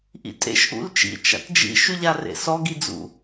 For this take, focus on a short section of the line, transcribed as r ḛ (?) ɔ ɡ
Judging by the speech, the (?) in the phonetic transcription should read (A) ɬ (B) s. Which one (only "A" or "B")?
B